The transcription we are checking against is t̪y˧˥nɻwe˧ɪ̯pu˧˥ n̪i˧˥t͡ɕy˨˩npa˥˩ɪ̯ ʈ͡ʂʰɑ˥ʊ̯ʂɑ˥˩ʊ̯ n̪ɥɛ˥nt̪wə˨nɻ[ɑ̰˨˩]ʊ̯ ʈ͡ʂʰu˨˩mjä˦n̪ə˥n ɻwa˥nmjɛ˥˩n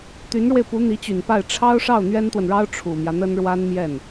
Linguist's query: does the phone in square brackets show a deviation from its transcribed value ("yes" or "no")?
yes